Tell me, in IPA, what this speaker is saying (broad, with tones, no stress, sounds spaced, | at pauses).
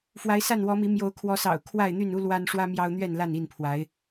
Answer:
f w a˨˦ ɪ̯ s a˥˨ n w ɔ˨˦ m i˨˦ m j o˨˦ ʊ̯ kʰ w ɔ˨˦ s ɑ̰˨˩ ʊ̯ kʰ w a˥˨ ɪ̯ n̪ y˥˨ n u˦ l w a˦ n ʂ w ä˦ m j ɑ˦ ʊ̯ n̪ ɥ ɛ˥˨ n l a˥˨ n i˥˨ n pʰ w a˨˦ ɪ̯